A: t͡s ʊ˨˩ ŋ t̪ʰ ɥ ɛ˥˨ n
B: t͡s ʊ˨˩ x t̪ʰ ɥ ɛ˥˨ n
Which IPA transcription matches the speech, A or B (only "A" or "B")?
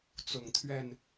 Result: A